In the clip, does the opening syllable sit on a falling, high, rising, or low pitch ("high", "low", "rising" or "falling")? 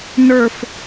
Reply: falling